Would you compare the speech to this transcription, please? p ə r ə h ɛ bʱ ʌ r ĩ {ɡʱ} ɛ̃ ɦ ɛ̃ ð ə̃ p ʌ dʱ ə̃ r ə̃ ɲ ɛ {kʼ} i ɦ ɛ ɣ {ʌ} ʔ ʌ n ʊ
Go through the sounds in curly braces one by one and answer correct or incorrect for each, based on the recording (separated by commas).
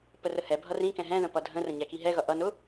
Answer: incorrect, incorrect, correct